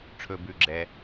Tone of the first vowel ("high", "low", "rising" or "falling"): low